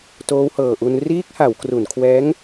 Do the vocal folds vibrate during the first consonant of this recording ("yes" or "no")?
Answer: no